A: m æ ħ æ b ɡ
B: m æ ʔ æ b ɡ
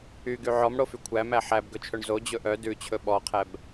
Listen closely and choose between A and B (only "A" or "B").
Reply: A